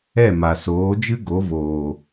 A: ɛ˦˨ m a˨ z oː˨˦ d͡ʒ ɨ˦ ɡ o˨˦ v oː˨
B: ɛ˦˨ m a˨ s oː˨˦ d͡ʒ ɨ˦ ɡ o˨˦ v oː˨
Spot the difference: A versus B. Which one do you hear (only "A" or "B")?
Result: B